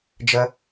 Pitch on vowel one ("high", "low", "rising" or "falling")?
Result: high